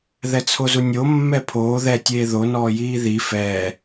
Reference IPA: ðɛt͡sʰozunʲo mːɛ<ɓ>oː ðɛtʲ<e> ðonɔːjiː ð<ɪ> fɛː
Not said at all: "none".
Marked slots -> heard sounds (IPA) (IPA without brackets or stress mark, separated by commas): pʰ, eː, i